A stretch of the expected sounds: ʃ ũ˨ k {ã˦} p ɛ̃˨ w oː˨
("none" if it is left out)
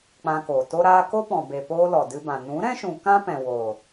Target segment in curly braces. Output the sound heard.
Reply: ã˦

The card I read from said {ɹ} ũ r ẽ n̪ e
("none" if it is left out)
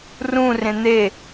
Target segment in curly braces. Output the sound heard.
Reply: r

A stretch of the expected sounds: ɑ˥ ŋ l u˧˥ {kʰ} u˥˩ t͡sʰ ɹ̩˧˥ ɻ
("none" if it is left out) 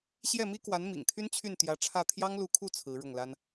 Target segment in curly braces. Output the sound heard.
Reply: kʰ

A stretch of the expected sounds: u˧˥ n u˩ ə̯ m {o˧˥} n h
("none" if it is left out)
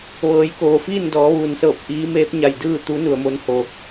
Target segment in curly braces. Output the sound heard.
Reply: o˧˥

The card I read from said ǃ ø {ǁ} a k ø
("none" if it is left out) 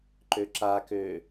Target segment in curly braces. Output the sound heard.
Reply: ǁ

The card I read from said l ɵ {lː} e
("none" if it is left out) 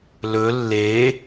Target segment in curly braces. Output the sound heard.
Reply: lː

